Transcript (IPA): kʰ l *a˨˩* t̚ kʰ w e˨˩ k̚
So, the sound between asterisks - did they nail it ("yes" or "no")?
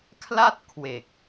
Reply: no